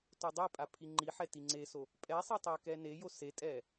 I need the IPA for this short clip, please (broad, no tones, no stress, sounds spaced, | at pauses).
t o dˤ i pʼ a pʰ i ŋ͡ǃ i ħ ɛ t i ŋ͡ǀ e s o | pʼ ɛ sˤ ɛ tˤ ɛ k ɛ n e j o s e tʼ ɛ